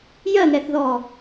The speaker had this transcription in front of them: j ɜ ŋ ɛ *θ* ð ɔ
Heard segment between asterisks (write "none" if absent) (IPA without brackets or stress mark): θ